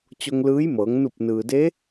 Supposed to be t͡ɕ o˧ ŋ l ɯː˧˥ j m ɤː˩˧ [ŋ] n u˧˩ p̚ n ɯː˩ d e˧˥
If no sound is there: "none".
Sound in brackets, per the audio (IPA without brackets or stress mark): ŋ